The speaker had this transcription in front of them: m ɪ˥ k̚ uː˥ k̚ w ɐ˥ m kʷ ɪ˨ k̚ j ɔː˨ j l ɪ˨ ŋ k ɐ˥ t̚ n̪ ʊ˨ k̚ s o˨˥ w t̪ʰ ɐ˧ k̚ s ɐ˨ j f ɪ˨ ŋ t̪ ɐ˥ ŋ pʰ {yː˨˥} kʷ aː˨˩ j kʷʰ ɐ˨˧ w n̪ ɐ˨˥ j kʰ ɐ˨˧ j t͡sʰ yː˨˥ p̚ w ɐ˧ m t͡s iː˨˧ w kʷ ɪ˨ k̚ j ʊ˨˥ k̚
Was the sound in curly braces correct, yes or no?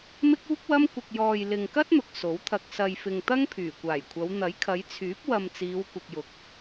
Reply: no